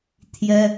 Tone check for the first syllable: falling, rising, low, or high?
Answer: high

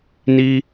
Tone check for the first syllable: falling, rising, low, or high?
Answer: high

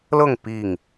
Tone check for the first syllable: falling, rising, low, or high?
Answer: falling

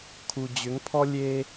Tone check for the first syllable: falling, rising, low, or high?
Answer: low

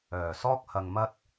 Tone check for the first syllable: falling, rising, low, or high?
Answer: low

